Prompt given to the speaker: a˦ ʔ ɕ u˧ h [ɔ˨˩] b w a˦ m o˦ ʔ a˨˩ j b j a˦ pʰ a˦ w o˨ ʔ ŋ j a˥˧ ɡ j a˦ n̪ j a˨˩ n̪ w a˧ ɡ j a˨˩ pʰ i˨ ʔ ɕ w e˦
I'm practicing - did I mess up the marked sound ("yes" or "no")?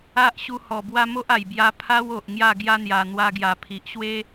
no